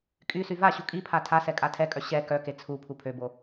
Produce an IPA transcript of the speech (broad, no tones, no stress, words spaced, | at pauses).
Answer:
kʼysy vaɕu kʼipʰa tʰasɛ kʼatʰɛkʼœ ɕɛ kœke t͡sʰu pʰupʰøbo